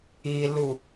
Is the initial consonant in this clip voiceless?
no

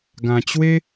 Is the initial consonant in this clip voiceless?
no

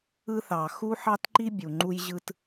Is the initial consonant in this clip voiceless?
yes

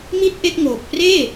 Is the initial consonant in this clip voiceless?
no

